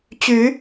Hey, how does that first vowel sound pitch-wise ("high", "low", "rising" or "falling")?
rising